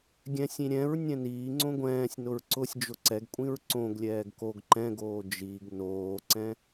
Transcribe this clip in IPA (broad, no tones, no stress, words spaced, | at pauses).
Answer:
ɡʲɛ̃sʲĩ ɾʲɛ̃ɹ nʲɛ̃niːŋ͡ǀõ ɡʷɛ̃ːsʲnʊɹ ǀʊsʲd͡ʒʊ ǀɛɡkʷʼĩɹ ǀõɡlʲɛːɡ koɡ ǃɛ̃ɡoː d͡ʒiɡ noːǀɛ̃